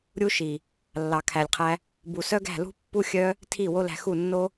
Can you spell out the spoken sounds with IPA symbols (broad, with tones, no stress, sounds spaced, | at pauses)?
ɾʲ u˦ ʃ i˨ | lː ɑ˨ kʰ æ˨ lʲ qʰ æ˧ | b u˨ s œ˦ ɡ æ̤˦˨ l ṳ˦ pː u˦ xʲ œ˦ | tʰ i˦˨ w o˦ l æ̤˧ x u˦˨ nː o˦